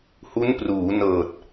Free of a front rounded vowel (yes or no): yes